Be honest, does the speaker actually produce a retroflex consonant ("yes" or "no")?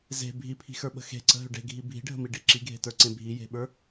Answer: yes